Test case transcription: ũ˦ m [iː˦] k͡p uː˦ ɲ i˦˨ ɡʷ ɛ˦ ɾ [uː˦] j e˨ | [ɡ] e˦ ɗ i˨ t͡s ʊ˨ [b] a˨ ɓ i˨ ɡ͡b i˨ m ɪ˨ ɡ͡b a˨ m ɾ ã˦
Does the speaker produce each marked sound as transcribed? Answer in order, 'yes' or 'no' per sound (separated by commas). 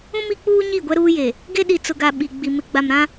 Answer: no, yes, yes, no